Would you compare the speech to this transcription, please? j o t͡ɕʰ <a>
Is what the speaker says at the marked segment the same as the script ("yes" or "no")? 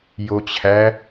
no